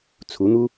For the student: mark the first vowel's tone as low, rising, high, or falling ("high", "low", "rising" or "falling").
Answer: rising